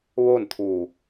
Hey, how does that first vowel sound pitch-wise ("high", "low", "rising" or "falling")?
falling